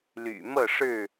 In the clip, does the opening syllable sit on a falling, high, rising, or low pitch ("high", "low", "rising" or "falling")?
low